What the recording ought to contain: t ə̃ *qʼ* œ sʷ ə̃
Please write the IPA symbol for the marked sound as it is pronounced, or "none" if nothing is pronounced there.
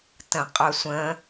qʼ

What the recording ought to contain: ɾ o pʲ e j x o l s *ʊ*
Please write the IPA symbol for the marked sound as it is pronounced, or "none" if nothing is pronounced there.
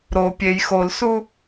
u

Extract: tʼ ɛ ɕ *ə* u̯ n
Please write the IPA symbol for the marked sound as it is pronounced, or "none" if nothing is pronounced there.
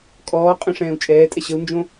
ə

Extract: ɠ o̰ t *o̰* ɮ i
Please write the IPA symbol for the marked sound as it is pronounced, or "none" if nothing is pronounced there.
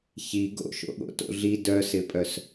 o̰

